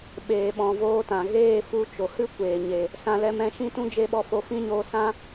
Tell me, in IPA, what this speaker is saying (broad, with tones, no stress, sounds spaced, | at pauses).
ɓ eː˨ ɓ ɔ̃˨ v oː˧ t ã˨ ɣ eː˦˨ f u˧ t͡ʃ o˨ h ɨ˦ kʷ eː˨ ɲ e˨ | s ã˧ l ɛ˧ m ɛ̃˨˦ ʃ ĩ˦ t ũ˦ d͡ʒ e˦ ɓ ɔ˧ f o˧ f ĩ˦ ɲ oː˧ s ã˦